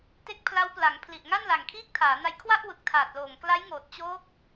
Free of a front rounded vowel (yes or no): yes